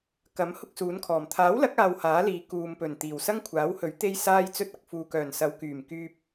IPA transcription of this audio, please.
kɐ˨˥m hʊ˥k̚suː˨˥nkʰɔː˨˩m t̪ʰaː˨˥wlɐ˨˥k̚ aː˧whaː˨˥liː˨ kuː˨mpɵ˨˩n t̪iː˨˩wsɐ˥ŋkʷʰaː˨˥whɵ˨˥ɥ t̪e˥jsaː˥jt͡sɵ˥t̚ɐ˨k̚ fuː˨kœː˨˩nsɐ˨˧w kyː˨˩mkyː˧p̚

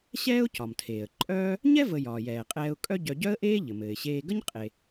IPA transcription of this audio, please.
ɕɛː˥ʊ̯cɒ˩mtʰeː˩ə̯ ǃʼœː˥ | ɲɛ˥ və˧ jɒː˩jɛː˩qʼɛː˧ʊ̯ kʼœ˥ ɟœ˧ɟœ˥ə̯ʔeː˥ ʎɘ˩mɘː˩ɪ̯ɕeː˧ɡə˥ɲ qʼe˩

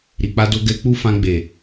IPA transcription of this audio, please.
ɾi˨k͡pa˧do˧ ɡɛ˧ k͡pu˦fã˧ ɡ͡be˨

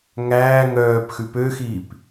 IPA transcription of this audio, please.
ŋæː ŋœːp xʉpøxiːp

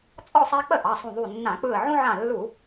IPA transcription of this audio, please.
t͡sʼɔ˥˨sˤa˦ k͡pə˥˨ʔɑ˩˧˩sˤũ˧˩ ðˤu˧˩nːã˧˩˧k͡pɯ˧˩ə̯ ʕũ˦ʕã˧˩lːu˧˩˧

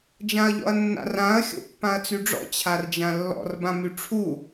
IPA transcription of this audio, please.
d͡ʒãɐ̯ʎɔ̰ɐ̯nːa̰r ãɐ̯ xʲo̰pːãɐ̯t͡syɖ͡ʐɔ̰ t͡ɕʰard͡ʒãlːɔ̰r bãmyʈ͡ʂʰu

